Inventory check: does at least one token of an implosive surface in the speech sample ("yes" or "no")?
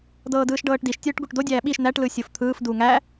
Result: yes